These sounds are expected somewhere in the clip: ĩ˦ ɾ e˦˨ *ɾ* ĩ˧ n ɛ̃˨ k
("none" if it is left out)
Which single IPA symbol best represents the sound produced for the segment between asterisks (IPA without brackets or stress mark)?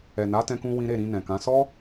ɾ